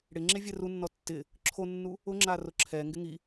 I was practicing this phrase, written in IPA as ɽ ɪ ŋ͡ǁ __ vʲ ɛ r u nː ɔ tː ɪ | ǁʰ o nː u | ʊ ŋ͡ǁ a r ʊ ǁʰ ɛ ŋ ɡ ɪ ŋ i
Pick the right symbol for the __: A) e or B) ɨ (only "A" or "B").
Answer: A